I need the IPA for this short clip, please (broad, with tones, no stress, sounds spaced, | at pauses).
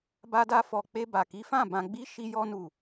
b a˦ d a˦ f ɔ˧ k͡p e˧ b a˨ k i˨˦ f ã˦˨ b ã˧ ɡ͡b i˦ ʃ i˧ j ɔ˧ n u˨